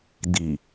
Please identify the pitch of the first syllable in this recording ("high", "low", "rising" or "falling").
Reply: low